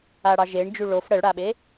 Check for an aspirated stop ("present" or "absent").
absent